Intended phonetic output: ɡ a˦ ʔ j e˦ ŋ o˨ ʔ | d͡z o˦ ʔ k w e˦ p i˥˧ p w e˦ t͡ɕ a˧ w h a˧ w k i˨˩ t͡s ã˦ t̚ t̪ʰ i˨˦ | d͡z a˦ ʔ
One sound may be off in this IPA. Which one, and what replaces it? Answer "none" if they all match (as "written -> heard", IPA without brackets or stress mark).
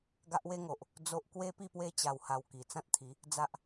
j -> w